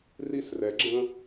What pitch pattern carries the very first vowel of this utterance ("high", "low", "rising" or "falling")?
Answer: falling